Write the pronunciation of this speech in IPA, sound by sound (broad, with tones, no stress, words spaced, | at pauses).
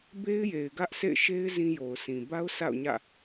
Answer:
be˦ɪ̯je˨ɪ̯ ɡä˦ʔsʰḛ˦˨ɪ̯ʃe˦ɪ̯ zĩ˦jo˨ʊ̯sĩ˨ ba˦ʊ̯ sa̰˦˨ʊ̯ɲä̰˦˨